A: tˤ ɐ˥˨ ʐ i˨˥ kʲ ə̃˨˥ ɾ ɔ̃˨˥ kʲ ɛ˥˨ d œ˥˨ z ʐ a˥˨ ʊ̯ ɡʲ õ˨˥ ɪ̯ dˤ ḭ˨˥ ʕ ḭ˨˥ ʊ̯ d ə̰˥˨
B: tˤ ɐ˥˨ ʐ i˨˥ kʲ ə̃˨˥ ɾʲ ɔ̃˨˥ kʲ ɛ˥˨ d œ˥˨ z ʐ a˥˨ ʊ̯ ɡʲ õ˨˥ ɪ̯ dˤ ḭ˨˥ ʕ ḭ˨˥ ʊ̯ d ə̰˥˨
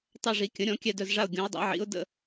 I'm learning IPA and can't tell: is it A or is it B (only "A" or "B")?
B